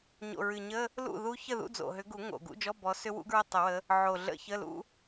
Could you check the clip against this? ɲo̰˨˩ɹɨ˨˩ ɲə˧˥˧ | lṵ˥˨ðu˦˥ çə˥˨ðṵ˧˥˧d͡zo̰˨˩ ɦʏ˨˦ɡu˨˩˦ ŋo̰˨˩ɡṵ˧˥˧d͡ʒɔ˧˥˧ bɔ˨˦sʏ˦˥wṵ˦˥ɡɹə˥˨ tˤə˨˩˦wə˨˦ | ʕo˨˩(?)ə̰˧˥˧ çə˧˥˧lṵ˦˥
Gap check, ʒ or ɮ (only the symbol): ɮ